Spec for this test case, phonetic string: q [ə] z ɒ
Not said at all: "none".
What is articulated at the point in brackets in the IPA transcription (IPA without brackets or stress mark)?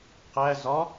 æ